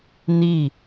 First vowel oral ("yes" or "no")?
yes